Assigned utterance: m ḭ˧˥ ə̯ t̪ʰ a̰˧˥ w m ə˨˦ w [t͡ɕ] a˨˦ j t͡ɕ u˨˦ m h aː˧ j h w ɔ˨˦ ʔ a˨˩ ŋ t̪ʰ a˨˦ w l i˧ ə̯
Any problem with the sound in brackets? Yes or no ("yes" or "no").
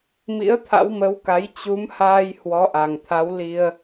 yes